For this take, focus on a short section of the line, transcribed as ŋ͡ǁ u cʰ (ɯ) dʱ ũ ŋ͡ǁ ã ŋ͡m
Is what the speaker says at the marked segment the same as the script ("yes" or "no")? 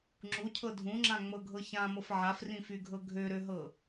no